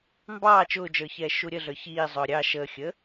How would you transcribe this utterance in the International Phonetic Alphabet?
mbɑː t͡ʃʊːd͡ʒə˞çɛː ʃuɾʲəɮə˞ çiː zˤʊːɾʲɑ ʃəːxʲə

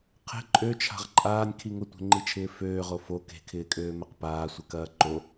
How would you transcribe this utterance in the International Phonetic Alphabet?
qʰe̤ ǃʼøt͡ʃʰa̤ʁ ǃʼaːnʲkʰi ŋʊtʷe̤ŋ͡ǃit͡ʃʰɪː føːʁo fo ke̤kʰɪːkʼøːmɛq paːsʷɪkɐː ǃo

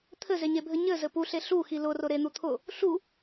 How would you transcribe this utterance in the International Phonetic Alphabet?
t̪ʰɘzeɲebʱɘ ɲɘzɘ puɬe ɬuxi lʊrʊ ɾen̪u t̪ʰʊ | ɬu

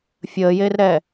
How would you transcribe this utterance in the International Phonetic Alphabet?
fʲəːjeːrɾɛː

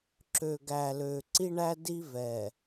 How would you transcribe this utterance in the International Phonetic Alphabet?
ǁø˨ɡæ˨lø˨ ǀi˦ɳæ˦di˦vɛ˨

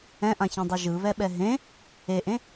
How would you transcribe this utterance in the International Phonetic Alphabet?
ɛ̃ʔãçẽdˤɤ ʒɯβɛɓɛ ɦẽ | eʔẽ

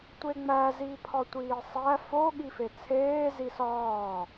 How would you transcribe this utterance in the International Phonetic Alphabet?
tʷeŋ͡mæ zipʰɒtʷiːsˤæ fo ɠifet͡sʰeː zisɒː

